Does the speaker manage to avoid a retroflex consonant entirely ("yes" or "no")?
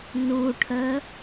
no